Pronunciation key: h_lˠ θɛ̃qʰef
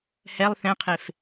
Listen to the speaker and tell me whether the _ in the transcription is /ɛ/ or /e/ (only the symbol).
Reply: ɛ